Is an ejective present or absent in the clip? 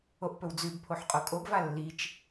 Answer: present